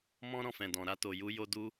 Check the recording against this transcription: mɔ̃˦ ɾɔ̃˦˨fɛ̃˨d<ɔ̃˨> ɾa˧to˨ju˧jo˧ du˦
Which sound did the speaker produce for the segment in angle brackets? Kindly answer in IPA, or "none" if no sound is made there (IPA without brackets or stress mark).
ɔ̃˨